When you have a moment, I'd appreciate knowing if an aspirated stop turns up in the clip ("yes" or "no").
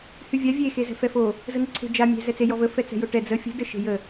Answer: yes